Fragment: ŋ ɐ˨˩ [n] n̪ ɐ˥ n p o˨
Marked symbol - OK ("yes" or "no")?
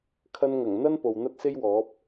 no